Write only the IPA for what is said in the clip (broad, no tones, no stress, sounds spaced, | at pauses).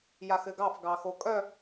j a x ɘ ɡ ɑ f ɡ ɑ x o kʼ œ